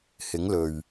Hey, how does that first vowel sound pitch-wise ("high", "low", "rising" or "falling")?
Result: rising